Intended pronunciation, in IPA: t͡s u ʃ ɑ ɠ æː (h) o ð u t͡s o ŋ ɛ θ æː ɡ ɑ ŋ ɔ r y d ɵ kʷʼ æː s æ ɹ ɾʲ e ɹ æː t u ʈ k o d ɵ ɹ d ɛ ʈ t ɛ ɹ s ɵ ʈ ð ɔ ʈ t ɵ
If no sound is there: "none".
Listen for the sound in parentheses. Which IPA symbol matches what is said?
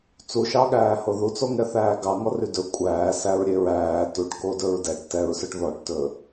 h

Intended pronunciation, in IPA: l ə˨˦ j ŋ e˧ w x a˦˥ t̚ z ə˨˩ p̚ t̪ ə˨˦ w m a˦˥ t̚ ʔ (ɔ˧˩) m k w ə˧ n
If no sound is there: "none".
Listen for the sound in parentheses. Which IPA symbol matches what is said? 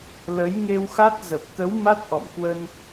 ɔ̰˧˨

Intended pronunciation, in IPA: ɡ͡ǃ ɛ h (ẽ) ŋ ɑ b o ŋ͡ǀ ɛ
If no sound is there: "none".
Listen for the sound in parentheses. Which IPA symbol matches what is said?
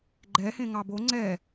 ẽ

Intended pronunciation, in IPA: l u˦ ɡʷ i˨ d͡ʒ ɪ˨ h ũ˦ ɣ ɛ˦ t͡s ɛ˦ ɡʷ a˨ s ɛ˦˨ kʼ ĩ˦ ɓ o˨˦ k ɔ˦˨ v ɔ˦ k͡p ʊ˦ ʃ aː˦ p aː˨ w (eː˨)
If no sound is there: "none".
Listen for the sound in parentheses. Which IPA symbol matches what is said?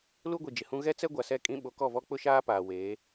eː˨˦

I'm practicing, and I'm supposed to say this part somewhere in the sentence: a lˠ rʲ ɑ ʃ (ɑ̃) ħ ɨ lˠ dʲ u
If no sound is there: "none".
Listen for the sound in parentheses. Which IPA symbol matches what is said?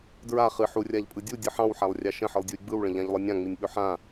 ə̃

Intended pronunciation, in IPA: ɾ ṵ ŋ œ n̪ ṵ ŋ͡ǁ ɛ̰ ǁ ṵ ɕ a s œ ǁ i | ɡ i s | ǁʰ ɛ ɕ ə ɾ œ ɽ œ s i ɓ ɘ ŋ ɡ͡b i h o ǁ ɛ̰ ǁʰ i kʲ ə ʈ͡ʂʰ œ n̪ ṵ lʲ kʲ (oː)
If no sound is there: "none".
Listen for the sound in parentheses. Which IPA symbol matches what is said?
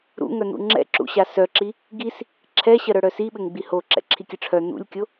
o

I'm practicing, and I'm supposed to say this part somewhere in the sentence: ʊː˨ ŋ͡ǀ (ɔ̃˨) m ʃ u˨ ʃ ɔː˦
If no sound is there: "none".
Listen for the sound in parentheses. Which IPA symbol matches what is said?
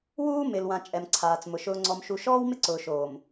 ɔ˨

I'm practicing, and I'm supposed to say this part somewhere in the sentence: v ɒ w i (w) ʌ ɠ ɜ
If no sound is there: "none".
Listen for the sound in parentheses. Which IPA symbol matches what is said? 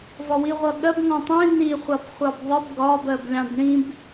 ʁʷ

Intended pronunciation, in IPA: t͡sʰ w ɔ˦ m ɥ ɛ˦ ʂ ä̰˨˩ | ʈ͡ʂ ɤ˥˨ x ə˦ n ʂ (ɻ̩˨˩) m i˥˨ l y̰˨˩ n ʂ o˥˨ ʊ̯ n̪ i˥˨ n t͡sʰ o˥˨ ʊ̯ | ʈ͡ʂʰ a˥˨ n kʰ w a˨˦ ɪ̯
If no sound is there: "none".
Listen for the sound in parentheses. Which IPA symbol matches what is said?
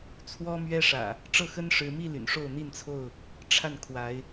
ɻ̩˨˦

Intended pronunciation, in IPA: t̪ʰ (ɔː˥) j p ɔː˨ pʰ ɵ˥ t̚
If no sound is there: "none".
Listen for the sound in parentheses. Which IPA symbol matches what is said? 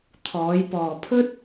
ɔː˨˧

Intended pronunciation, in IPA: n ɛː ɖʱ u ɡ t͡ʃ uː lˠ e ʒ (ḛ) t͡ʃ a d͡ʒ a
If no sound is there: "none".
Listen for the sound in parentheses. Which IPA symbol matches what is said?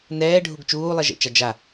ḛ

